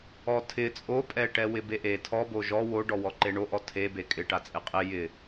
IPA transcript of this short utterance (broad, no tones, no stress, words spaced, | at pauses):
ɔtʰɪ t͡sʼopʼɛʈɛ wɪbeʔe tʰɔbo ʒɔ woɖɔ wɔǃeɳoʔɔ tʰe bekʼɪʈat͡sʼɪ qʼɪ jɪ